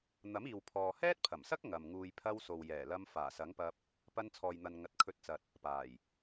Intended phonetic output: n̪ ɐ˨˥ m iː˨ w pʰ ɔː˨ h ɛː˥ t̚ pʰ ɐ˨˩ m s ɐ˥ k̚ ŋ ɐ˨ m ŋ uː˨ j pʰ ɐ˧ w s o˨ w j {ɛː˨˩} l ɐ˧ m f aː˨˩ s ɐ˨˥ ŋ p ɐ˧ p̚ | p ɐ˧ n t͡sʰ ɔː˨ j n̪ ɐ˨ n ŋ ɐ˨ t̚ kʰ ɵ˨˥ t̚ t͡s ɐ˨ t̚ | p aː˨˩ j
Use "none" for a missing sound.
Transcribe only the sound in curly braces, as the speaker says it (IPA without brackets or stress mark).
ɛː˨˩